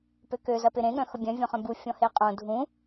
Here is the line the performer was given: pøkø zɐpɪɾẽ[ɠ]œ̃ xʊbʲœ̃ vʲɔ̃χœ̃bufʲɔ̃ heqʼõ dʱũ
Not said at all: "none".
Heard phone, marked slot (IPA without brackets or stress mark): ɠ